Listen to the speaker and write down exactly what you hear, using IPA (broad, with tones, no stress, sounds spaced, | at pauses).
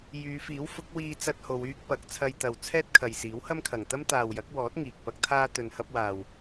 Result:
j yː˨˧ f iː˨˥ w f ʊ˨˥ k̚ w iː˧ t͡s ɐ˧ t̚ h o˨˧ w yː˥ k̚ p ɐ˨˥ k̚ t͡sʰ ɐ˧ j t̪ ɐ˨ w t͡sʰ ɛː˥ t̚ kʰ ɐ˨ j s iː˨˥ w h ɐ˥ m kʰ ɐ˨ ŋ t̪ ɐ˥ m t̪ aː˨ w j ɐ˨˥ k̚ w ɔː˨˥ t̚ ŋ iː˨ k̚ p ɐ˥ k̚ t̪ʰ aː˥ t̪ ɵ˧ n h ɐ˥ p̚ w aː˧ w